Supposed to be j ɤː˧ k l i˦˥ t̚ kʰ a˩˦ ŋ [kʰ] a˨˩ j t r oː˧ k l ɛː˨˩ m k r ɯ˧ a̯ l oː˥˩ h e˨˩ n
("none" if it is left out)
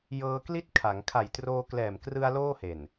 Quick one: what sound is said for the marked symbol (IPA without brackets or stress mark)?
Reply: kʰ